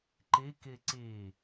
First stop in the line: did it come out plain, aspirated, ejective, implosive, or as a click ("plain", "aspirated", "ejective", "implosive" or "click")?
click